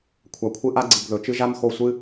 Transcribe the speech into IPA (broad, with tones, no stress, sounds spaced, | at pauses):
kʷʰ a˨ kʷʰ ɨ˦ ʔ a˦ ɡ͡ǀ ɨ˨ ɡ ð ɵ˨ t͡ʃ ɨ˦ ʒ a˦ m x o˦˨ sʷ ɨ˦